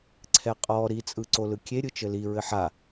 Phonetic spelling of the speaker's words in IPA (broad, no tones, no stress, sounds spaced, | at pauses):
ǀʰ ɛ qʼ ɔ ɾ i t͡sʼ ɯ ǀ o l ɯ kʲ e ɾʲ ɯ t͡ʃ ɘ l i ɹ ɘ ħ a